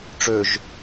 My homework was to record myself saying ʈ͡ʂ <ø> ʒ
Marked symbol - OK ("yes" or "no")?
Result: yes